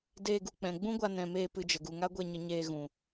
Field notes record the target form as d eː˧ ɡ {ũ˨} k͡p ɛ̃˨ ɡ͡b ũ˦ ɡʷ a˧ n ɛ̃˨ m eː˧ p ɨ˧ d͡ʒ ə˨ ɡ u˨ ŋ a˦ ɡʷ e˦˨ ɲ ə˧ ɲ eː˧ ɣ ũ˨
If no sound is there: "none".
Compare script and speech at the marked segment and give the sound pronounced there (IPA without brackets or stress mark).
u˨